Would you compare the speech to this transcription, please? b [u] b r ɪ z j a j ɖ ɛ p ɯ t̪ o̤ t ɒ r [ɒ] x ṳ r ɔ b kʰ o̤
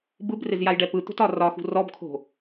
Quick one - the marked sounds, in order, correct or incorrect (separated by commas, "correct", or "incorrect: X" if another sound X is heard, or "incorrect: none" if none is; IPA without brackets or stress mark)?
incorrect: ɯ, correct